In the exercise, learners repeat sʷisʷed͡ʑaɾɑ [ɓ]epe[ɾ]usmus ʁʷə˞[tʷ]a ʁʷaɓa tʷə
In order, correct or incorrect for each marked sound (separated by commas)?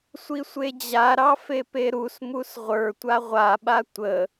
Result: incorrect, correct, correct